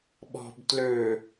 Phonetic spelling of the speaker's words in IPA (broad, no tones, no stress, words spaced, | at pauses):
ɓɔ̤b tlø